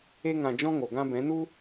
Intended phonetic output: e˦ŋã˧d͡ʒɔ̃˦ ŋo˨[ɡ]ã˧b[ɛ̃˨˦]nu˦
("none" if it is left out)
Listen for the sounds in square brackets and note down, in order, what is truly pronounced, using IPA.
ɡ, ɛ̃˨˦

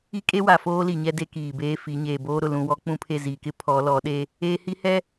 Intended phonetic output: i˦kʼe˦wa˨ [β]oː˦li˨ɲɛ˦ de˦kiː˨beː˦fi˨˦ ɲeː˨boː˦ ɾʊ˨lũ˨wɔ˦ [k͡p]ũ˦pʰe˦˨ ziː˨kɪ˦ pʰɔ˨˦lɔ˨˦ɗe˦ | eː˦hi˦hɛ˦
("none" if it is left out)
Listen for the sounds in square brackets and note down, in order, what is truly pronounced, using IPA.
f, k͡p

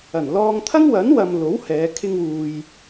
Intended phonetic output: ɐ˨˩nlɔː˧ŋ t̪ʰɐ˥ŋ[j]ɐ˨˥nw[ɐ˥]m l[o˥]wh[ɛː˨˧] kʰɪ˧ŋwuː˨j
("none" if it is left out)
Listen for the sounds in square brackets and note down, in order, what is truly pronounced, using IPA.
w, ɐ˨, o˨˥, ɛː˨˧

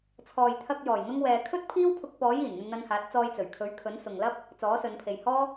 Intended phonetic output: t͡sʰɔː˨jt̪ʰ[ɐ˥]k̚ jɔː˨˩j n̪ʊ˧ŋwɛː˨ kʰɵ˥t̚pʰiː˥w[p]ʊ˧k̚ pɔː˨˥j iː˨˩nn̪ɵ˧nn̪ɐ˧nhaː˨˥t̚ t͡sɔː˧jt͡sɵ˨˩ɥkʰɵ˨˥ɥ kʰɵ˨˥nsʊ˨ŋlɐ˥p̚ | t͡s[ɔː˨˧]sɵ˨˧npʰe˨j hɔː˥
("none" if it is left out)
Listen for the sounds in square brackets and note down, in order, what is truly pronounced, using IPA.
ɐ˧, pʰ, ɔː˨˥

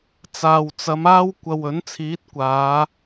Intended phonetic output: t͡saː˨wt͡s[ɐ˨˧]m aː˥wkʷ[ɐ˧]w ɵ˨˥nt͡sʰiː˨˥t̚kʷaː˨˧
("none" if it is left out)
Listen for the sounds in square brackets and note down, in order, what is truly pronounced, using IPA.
ɐ˨˧, ɐ˧

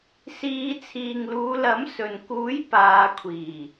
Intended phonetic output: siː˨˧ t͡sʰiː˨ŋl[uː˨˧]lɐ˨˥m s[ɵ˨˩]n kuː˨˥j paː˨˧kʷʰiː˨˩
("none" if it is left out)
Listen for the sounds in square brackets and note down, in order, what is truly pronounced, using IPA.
uː˨˧, ɵ˨

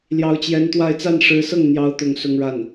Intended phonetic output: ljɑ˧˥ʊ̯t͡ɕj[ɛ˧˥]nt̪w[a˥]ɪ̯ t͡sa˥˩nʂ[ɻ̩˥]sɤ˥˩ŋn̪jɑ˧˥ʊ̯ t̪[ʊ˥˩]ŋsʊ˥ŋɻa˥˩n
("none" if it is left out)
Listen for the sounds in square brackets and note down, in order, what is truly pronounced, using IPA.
ɛ˧˥, a˥˧, ɻ̩˧˥, ʊ˥˩

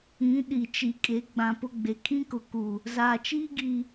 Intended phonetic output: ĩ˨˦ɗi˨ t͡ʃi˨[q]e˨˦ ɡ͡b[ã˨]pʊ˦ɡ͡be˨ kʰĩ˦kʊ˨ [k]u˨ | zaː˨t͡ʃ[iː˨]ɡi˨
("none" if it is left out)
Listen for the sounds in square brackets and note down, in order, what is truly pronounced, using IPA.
kʼ, ã˨, k, iː˦

